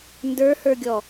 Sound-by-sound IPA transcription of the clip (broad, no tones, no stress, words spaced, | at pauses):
ndə˞hə˞ɡʲɔ